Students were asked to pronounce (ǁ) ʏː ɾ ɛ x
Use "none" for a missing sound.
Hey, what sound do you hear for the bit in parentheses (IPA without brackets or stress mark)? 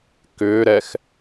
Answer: k